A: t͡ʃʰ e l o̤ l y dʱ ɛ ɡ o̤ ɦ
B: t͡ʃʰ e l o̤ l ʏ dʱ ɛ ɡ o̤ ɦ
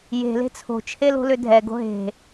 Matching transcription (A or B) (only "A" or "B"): B